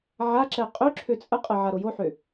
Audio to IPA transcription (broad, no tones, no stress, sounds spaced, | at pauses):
ʕ a ǁ ɛ qʼ ø ǁʰ ø t͡sʼ ə qʼ ə ʕ a ɾ o j o ħ ø